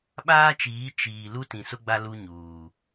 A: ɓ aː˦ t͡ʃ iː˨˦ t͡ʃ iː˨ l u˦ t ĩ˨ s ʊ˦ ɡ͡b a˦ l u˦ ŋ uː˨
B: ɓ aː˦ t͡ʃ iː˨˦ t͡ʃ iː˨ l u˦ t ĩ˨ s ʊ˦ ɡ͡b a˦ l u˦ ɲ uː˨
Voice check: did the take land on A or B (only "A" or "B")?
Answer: B